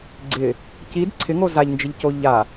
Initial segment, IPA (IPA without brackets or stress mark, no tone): ɡ͡ǀ